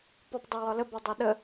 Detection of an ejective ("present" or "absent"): absent